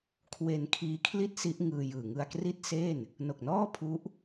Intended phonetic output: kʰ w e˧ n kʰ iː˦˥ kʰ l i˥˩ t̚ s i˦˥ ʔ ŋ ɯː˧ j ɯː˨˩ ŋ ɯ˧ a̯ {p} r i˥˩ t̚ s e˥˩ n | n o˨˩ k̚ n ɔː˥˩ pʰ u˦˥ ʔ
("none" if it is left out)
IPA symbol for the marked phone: k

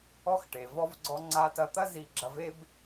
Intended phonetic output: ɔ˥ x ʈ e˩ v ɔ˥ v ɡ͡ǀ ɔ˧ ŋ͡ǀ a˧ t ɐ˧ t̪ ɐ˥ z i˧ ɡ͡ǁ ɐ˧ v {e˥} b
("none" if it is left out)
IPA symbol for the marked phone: e˥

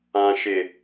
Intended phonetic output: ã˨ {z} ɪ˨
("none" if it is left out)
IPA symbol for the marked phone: ʃ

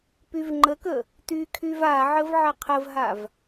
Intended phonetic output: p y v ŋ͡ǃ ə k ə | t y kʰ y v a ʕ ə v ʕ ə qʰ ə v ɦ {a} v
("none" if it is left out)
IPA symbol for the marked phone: a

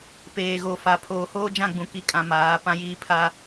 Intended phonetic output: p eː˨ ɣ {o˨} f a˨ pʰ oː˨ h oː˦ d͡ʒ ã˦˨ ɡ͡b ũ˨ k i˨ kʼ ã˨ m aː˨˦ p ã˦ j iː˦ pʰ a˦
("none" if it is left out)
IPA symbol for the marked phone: o˨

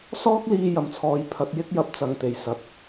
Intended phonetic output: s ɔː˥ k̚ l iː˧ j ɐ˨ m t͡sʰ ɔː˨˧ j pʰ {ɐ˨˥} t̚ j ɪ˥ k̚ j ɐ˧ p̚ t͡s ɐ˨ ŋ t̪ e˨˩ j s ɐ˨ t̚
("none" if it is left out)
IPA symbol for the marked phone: ɐ˨˥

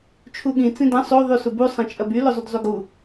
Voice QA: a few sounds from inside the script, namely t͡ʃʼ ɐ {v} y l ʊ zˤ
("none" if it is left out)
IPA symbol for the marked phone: b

